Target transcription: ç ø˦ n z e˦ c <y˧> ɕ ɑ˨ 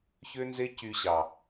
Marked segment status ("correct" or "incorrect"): correct